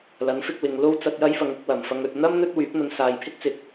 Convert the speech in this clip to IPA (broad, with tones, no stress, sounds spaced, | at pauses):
l ɐ˨˥ n f ɪ˧ k̚ w ɪ˨ ŋ l o˥ w t͡s ɐ˧ t̚ j ɐ˥ j f ɐ˨˧ ŋ ɪ˧ k̚ w ɐ˨˩ m f ɐ˧ ŋ ɵ˨ t̚ n̪ ɐ˥ m n̪ ɵ˥ t̚ w yː˨˥ p̚ n̪ ɐ˧ n s aː˨ j pʰ ɪ˥ k̚ t͡s ɪ˨ k̚